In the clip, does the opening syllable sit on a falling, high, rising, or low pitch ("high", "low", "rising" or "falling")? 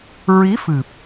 rising